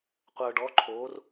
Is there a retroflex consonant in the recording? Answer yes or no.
yes